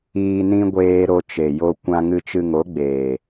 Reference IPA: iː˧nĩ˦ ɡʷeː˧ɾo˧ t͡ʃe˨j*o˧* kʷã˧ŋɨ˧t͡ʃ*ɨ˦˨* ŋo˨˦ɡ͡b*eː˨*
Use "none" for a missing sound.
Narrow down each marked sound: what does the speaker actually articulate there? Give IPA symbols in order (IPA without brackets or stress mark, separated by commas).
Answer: o˧, ɨ˧, eː˨